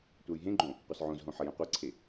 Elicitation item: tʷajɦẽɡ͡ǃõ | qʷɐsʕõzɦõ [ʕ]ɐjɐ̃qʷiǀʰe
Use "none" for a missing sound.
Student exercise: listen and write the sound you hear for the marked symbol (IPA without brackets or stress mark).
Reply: ħ